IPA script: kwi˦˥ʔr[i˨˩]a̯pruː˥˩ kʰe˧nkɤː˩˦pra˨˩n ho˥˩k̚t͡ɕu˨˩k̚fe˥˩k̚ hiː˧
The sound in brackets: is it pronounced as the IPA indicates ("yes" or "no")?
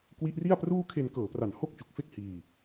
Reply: no